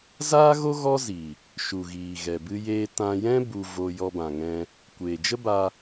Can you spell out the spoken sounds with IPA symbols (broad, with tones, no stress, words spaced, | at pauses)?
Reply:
zaː˦ɣo˦ ɣɔ˦zi˨ | ʃu˨ɣiː˨ ɣɛ˨bɨ˧jeː˧ tã˧jɛ̃˦ bu˧vo˧ jɔ˧bã˨ŋɛ̃˧ | kʷeː˨d͡ʒə˦ba˧